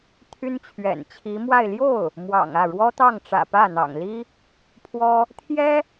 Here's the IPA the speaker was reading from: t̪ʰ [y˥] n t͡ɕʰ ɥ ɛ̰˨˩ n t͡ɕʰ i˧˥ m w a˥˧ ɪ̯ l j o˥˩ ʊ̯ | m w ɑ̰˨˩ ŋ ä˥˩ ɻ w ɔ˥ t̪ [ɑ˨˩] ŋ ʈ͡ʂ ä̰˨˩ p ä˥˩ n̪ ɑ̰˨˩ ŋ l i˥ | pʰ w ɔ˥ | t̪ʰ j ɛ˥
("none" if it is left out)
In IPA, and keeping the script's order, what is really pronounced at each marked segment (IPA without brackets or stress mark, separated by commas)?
y˥, ɑ˥˩